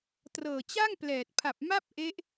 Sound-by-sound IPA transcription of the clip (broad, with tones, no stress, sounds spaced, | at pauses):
t r ɤː˨˩ t͡ɕ a˥˩ ŋ p l ɛː˨˩ t̚ pʰ a˨˩ p̚ m a˥˩ p̚ ʔ e˦˥ ʔ